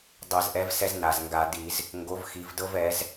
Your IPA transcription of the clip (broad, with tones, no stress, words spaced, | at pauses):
dˤɛ˧˩˧zʔɛ˨˥vsɛ˦zna˩z ŋɡa˧˩˧di˧˩˧z | ŋɡo˨˥v xi˩˧vdɤ˦v ɛ˨˥z